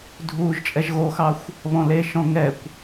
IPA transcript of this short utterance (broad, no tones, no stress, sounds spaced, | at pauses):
dʱ uː ʒ t͡ʃʼ ɛ ʒ ɣ o x ɑ xʷ | β ɔ̃ l e ʃ ɔ̃ ŋ ɛ kʷ